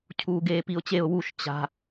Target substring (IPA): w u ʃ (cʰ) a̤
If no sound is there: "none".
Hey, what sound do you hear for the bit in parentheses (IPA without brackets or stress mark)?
t͡ɕ